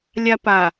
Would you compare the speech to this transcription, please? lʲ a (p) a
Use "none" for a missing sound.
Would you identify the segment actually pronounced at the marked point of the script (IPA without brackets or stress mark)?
p